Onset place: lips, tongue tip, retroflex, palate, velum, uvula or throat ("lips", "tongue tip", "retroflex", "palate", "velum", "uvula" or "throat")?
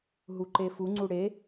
throat